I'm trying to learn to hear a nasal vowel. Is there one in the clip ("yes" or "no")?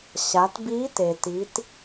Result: no